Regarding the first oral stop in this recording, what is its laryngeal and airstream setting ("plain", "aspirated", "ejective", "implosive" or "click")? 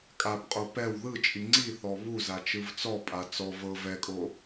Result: ejective